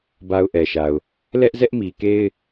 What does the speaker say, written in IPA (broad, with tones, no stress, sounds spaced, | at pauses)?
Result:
b a˦ ʊ̯ ʔ ɛ˨ ʃ a˨ ʊ̯ | l ɛ˦ ʔ z ɛ˦ ʔ m i˨ k e˦ ɪ̯